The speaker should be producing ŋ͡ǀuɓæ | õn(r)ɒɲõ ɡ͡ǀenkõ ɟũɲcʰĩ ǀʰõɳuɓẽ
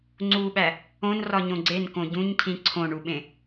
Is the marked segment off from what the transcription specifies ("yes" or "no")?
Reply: no